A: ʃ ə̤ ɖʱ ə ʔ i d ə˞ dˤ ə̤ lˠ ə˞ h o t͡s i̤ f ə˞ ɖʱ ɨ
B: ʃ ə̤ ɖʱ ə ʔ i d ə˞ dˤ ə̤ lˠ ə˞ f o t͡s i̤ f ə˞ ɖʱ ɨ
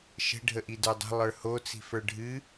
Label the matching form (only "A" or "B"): A